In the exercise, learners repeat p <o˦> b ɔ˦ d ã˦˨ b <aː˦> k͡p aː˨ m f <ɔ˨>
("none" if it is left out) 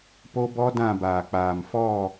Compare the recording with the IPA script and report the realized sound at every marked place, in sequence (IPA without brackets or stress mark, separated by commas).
o˦, aː˨, ɔ˦˨